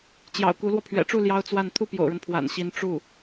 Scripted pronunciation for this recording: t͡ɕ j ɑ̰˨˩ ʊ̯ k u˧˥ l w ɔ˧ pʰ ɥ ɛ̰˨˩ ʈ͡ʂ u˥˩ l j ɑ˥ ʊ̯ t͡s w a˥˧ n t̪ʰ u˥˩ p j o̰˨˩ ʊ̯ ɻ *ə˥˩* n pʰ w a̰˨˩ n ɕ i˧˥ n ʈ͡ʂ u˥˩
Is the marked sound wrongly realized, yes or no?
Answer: yes